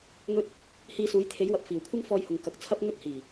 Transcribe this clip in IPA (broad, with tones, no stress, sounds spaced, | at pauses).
ŋ ɵ˧ t̚ | h iː˧ s uː˨˥ j t̪ʰ e˨˥ j w ɐ˨ p̚ f iː˨˩ w kʷʰ ɐ˥ ŋ f ɔː˧ j h ʊ˨ ŋ k ɐ˨ k̚ t͡sʰ ɐ˥ p̚ ŋ ɵ˥ t̚ h iː˨˩